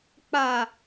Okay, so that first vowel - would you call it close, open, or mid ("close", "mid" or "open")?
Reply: open